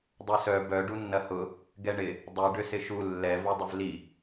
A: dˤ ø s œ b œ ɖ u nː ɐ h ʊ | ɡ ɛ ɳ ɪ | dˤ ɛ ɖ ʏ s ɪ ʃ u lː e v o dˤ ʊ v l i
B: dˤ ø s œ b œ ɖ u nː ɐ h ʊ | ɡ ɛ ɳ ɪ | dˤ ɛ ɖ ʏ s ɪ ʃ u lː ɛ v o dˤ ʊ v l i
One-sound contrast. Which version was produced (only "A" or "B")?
B